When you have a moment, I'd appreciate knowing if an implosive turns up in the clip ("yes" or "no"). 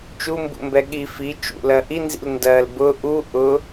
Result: yes